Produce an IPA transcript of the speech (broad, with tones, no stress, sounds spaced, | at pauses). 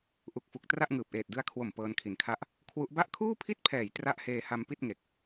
ʔ u˨˩ k̚ f u˨˩ k̚ t r a˥˩ ʔ ŋ ɯː˨˩ p̚ ʔ eː˨˩ t̚ d ɯ˧ a̯ kʰ w o˨˩ m p ɤː˧ n kʰ i˨˩ n kʰ a˦˥ ʔ | kʰ w u˦˥ ʔ b a˦˥ ʔ kʰ uː˥˩ pʰ i˥˩ t̚ pʰ ɛː˨˩ j t r a˦˥ ʔ h eː˧ h a˧ m p i˥˩ t̚ ŋ e˨˩ k̚